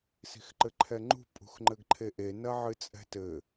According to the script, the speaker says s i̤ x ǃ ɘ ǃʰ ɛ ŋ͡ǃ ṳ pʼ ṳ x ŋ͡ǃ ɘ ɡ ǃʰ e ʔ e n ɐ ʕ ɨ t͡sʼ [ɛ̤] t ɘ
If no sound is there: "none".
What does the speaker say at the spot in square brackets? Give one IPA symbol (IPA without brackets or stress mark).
ɛ̤